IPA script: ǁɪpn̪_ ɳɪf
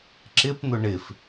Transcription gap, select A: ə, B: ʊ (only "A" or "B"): B